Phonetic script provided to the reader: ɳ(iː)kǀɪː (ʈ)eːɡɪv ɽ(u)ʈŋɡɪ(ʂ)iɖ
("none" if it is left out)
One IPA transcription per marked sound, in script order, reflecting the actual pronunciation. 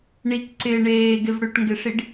i, ɳ, ʏ, ʂ

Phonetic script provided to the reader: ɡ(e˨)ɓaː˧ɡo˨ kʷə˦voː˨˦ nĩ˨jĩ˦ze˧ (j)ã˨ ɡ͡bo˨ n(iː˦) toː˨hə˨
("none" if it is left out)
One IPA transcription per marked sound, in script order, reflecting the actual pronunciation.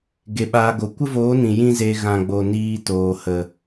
e˨, ɣ, iː˧

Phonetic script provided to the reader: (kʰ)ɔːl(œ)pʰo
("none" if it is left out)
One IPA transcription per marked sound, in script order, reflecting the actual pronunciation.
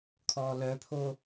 kʰ, œ

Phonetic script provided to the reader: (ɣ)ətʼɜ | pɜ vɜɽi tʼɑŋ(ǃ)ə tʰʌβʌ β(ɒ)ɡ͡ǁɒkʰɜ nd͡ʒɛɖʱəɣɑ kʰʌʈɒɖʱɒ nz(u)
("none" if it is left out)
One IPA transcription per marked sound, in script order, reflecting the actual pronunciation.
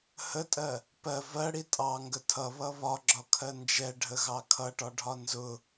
h, ɡ, ɒ, ʊ

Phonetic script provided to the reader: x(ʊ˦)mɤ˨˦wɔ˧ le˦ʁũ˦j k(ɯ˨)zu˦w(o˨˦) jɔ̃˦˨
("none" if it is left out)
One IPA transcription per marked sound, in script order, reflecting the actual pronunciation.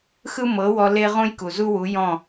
ɯ˦, u˨, u˨˦

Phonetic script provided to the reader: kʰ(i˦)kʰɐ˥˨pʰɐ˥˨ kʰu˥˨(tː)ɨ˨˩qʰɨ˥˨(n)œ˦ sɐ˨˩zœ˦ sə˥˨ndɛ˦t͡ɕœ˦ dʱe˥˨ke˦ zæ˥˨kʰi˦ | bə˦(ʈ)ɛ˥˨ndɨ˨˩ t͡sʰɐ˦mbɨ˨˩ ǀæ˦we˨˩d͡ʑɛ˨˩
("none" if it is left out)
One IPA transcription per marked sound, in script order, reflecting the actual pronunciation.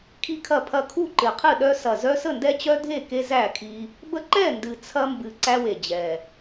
i˥˨, ǃ, ɗ, ǃ

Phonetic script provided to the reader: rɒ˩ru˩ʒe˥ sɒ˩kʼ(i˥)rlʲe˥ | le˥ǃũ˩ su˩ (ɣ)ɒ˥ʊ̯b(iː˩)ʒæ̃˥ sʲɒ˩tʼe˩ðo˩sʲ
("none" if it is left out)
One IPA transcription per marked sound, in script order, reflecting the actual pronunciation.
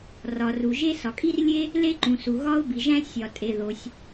i˥, ɣ, i˩

